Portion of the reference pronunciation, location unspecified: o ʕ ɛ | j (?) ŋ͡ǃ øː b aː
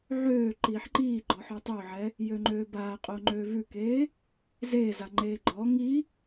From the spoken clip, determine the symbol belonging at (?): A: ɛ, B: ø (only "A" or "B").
B